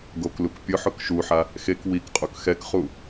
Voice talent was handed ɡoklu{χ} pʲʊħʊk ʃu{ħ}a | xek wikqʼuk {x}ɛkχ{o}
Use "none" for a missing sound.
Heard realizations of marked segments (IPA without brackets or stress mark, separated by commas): k, ħ, x, u